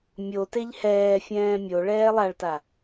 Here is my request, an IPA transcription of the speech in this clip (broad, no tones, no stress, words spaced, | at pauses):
mʲoteʎ hɛːfʲɛ̃ː mʲo ɭɛːlˠaɭta